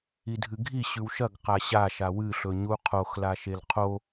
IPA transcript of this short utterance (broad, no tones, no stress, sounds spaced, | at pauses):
i dʱ ɨ ɡʱ i ɕ ʉ w ʃ ɐ ɡ q a ɕ a ʃ a w ɨ ɬ ɵ ɲ u qʰ o x l a ʃ e l qʰ o